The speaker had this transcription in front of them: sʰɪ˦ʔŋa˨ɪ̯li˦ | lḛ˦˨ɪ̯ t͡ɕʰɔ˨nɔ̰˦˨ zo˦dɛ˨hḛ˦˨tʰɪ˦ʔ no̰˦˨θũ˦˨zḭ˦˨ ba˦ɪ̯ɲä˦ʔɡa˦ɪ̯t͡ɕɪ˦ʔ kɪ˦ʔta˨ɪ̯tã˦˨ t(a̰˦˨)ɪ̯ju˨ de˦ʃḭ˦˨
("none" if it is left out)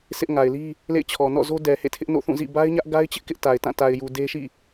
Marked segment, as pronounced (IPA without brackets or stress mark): a˨